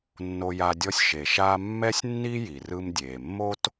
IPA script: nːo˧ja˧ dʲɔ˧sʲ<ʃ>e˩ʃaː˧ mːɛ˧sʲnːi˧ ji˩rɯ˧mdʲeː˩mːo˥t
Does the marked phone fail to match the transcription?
no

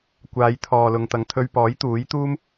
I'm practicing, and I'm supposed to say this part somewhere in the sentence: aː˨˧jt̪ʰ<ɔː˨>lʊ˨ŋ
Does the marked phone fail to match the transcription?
no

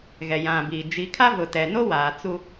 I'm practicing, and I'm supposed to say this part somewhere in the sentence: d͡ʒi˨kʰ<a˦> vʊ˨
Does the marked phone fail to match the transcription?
no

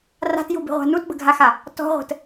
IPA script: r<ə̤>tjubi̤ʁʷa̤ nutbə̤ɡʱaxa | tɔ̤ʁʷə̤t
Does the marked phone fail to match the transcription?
yes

